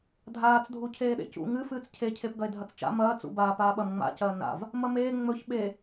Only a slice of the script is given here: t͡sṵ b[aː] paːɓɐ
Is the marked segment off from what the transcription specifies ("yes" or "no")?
no